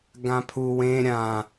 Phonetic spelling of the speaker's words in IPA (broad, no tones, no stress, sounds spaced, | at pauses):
ɡ ã pʰ u w ẽ ɾʲ ã